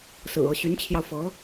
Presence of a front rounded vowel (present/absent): present